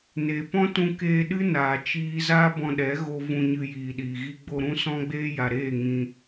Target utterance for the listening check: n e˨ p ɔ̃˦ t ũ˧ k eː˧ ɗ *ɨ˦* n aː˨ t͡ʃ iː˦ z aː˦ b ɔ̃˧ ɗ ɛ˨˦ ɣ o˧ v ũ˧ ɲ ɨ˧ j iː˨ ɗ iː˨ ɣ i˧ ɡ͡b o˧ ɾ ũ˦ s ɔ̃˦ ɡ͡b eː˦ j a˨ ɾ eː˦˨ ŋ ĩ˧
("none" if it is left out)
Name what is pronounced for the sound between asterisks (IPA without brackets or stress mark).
ɨ˦